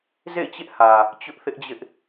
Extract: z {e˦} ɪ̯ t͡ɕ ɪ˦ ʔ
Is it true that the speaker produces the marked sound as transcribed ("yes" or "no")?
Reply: no